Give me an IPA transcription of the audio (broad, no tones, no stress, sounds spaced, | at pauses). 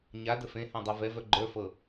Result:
ɲ a d ə f ẽ h ã dˤ a v ɛ v œ ɡ͡ǃ ə˞ f ɤ